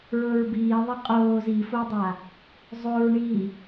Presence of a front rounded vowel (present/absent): absent